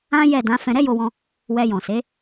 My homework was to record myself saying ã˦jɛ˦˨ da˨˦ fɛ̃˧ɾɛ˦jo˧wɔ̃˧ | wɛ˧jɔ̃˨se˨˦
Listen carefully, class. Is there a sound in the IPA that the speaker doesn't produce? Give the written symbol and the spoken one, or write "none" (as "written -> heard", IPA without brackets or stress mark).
a˨˦ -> ã˨˦